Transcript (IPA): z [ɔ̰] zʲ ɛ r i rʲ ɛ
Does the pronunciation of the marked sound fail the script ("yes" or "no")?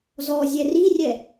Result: yes